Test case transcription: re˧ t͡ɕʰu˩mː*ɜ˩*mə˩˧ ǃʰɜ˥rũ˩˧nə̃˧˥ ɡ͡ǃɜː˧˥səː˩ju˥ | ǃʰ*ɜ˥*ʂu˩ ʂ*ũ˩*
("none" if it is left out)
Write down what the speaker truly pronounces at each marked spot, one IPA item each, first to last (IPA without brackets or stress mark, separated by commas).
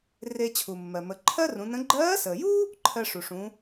ɜ˩, ɜ˧, ũ˩˧